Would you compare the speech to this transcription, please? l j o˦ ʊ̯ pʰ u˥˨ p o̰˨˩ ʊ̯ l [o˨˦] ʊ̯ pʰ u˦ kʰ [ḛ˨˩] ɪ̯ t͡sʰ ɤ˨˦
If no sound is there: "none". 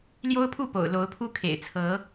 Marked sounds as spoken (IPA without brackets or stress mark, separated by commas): o˨˦, ḛ˨˩